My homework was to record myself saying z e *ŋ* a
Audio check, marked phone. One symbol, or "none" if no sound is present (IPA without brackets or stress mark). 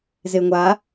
ŋʷ